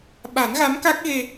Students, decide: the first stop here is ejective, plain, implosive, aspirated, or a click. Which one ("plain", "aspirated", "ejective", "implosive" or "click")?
implosive